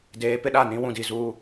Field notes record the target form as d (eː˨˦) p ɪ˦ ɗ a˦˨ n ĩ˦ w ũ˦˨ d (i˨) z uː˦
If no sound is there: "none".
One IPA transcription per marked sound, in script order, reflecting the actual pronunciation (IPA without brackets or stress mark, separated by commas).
eː˨˦, i˨